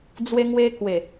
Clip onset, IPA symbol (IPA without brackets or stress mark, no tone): d͡z